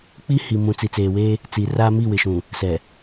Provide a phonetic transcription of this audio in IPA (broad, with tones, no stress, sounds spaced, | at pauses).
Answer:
k͡p i˦ h i˨ m ũ˨ t͡s i˨ t͡s eː˨ w eː˦ | t͡s i˨ r aː˦ m i˦˨ w ɪ˨ ʃ ũ˨ | s ɛ˨